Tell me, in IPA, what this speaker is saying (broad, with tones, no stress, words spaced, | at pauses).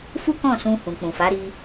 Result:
fu˦kɔ̃˦˨sũ˧ hũ˨k͡pũ˨fa˨˦ɾi˧